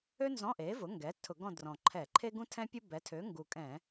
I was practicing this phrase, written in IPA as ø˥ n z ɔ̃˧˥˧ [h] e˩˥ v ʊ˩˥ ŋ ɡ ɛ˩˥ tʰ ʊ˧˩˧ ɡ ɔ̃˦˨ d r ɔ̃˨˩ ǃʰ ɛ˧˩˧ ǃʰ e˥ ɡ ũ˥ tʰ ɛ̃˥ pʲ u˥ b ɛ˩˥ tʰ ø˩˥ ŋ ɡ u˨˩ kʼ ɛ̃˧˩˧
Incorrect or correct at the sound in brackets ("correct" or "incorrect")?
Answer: incorrect